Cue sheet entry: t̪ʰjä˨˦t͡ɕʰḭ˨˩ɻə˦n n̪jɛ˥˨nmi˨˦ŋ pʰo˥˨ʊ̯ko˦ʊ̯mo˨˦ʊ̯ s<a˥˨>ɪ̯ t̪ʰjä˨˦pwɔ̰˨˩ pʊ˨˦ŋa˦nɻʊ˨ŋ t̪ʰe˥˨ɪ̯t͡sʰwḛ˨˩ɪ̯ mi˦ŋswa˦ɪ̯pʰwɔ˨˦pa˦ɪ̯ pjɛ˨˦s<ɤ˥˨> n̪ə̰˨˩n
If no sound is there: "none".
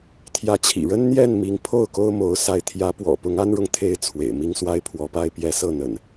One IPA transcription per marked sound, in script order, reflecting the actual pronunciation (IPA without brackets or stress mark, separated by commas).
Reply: a˦, ɤ˥˨